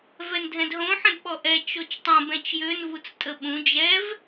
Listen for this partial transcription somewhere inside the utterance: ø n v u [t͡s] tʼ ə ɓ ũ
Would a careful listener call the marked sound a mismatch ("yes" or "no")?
no